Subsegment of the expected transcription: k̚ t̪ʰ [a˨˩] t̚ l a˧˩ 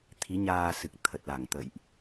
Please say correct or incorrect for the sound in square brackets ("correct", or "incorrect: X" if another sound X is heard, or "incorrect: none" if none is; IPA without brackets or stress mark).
incorrect: ə˨˩